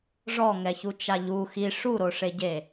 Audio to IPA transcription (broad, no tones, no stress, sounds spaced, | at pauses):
ʐ ɔ ŋ ɛ ç u t͡ʃ a ʎ u x i ʂ u ɾ o ʂ e ɟ e